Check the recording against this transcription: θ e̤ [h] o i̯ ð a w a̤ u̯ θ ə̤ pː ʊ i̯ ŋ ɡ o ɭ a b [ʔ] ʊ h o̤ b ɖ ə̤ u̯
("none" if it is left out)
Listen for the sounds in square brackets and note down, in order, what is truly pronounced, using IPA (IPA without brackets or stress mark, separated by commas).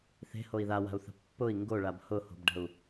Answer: h, h